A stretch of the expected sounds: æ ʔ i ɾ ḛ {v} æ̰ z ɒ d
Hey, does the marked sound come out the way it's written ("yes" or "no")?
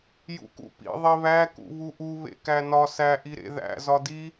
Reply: no